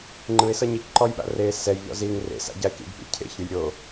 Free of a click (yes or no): no